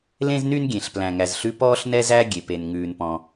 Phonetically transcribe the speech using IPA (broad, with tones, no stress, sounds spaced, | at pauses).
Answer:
l ẽ˥ z n y˥ n ɡʲ ẽ˩ ɬ p l æ̃˩ ŋ æ˩ z ɬ ʉ˥ p ɔː˥ ɬ n ɛ˥ z æ˥ ɡʲ e˩ p e˩ n ŋ ʉː˩ n p ɔ̃˩